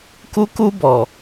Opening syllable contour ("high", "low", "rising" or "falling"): high